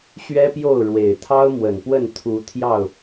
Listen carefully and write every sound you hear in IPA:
ɕɥɛ˦pjo˥˨ʊ̯ ɻwe˨˩ɪ̯ t̪ʰɑ˦ʊ̯mwə˨˩npwə˥˨n t̪ʰu˨˦ t̪ʰjɑ˥˨ʊ̯

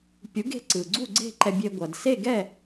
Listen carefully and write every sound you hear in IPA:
pʲu˩˥ɡe̤˧ǀɯ˩ ɡ͡ǀu˥˩ɡ͡ǀe̤˥˩ ǃɛ˧bʲe˧ ɡʷʌ˩dse˥˩ɡɛ˥˩

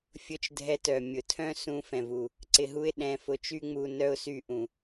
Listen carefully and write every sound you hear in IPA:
fʲʊ˧t͡ʃdʱɛ˧ tœ˩mʲʊ˩ tʰœ̃˥sũ˧ fɛ̃˩vu˩ | ǀɪ˧ɦu˥ɪ̯ ɗɛ̃˧fʊ˧t͡ʃy˥ŋ͡mu˧ nœ˥ʊ̯ sy˧ʔũ˩

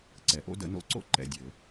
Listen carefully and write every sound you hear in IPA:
ǀɛ˨˩˦ʔo̰˥ də̰˨˥ no̰˨˥ǀo̰˥˨ ǃɛ̰˨dʲɘ˨˩˦

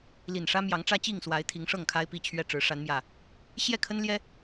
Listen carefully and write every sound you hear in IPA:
li˨˩nʂä˦mjɑ˨˦ŋ ʈ͡ʂä˦t͡ɕi˥˨ŋswa˨˦ɪ̯ t̪ʰi˨˦ŋʂɤ˥˨ŋkʰa˦ɪ̯ pi˥˨t͡ɕʰɥɛ˥˨ʈ͡ʂɻ̩˨˦ ʂa˨˦nmjä˨˩ | ɕjɛ˥˨kʰə˦nljɛ˦

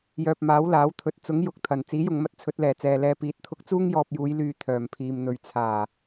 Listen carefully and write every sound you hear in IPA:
jœː˨p̚maː˨˥wlaː˨˥wt̪ʰɵ˨t̚ t͡sʊ˨˥ŋjʊ˨k̚t̪ʰɐ˨˩n t͡siː˨˥jʊ˨ŋmɐ˧t̚ t͡sʰɵ˨˥t̚lɛː˨˩t͡sɛː˨lɛː˧ piː˨˥t̚t̪ʰʊ˧k̚ t͡suː˥ŋjɔː˧p̚juː˨˧j lyː˧ t̪ʰœː˨m pʰiː˨mn̪ɵ˨ɥ t͡sʰaː˨˩

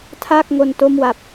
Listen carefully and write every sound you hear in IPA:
tʰaː˥˩k̚ŋo˧n to˥˩mwa˨˩p̚

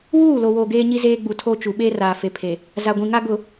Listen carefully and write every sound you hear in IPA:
wuː˦˨lo˨woː˨ ɡeː˦ɲi˦zeː˦ ɡ͡bu˨tʰo˦t͡ʃu˨ ɓeː˦raː˨fe˨ pʰe˨ | za˨ɡʷĩ˨ŋa˦ ɡʊ˨

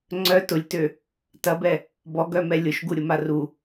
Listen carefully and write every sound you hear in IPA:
ŋ͡ǀœ tʊlʲtø | tɐbɛ | bɔɡœmɛ lʲʊʃɡuɾʲʊma ru

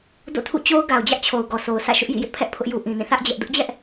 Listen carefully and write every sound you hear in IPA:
do̰˦˨tʰṵ˦˨t͡ɕo˦ʊ̯ ɡa˨ʊ̯d͡ʑä˦ʔt͡ɕʰo˨ʊ̯ ɡɔ˨so˨ʊ̯sä̰˦˨ ʃʊ˦ʔjḭ˦˨jɪ˦ʔpʰɛ˦ʔ pʰʊ˦ʔju˦ ʔĩ˨nĩ˦˨ θä˦ʔ d͡ʑɛ˦ʔ dʊ˦ʔd͡ʑɛ˦ʔ

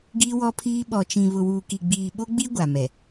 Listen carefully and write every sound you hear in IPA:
ɡiː˦wɔ˦pʰiː˦ ɓɔ˨t͡ʃĩ˨ βʊ˨wuː˨ki˨ɡ͡biː˨ ɓo˦ɡ͡bi˦ ɡʷa˨mɛ˨

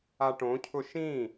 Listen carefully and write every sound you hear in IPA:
aʈõcʰʊ ʃĩ

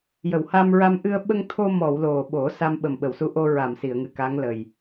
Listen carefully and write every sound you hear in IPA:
jə˨˩˨wha˧mɹa˧m ʔɨ˧ə̯ ɓə˧ŋt̪ʰo˧mɔ˨˩˨w lo˨˩ɓo˨˩˦ sa˧mɓə˨˩mɓə˨˩˨wsu˧˥ ʔo˧ ɹa˨˩˨m si˨˩˨ə̯ŋɨ˨˩ka˧˥ŋ lə˨˩j

